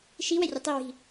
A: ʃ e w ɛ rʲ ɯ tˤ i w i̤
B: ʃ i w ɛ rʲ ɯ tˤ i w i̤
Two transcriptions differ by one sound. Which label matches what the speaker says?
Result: B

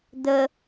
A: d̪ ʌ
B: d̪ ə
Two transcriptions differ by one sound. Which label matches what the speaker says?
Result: B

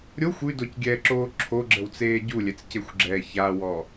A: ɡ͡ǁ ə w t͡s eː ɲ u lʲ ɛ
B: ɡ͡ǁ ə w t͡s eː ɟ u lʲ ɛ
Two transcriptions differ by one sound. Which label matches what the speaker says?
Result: B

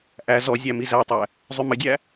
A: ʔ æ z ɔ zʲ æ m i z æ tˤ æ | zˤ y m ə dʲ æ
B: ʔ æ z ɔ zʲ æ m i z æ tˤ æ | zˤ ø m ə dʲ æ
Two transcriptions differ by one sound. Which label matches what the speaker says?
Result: A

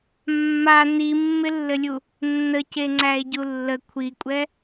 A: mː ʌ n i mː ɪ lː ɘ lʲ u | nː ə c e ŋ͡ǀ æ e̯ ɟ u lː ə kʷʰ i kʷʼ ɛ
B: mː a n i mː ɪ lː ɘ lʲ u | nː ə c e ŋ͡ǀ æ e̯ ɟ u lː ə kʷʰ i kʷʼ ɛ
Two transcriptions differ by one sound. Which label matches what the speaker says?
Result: B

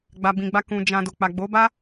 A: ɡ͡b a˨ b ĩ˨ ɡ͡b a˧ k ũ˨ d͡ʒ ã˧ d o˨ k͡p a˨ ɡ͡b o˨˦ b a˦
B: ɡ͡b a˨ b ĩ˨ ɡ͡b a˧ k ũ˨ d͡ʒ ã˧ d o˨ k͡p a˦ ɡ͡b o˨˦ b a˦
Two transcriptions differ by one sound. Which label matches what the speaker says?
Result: A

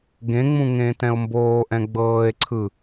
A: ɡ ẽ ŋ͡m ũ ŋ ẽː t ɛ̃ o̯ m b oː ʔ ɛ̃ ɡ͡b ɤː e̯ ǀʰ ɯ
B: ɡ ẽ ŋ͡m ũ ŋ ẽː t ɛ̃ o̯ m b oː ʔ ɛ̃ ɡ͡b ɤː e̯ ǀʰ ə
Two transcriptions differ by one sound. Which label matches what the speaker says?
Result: A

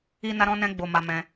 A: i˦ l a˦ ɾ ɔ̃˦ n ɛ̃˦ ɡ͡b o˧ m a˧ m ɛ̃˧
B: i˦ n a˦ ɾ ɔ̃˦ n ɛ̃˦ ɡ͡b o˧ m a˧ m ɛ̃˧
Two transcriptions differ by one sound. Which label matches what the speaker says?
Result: B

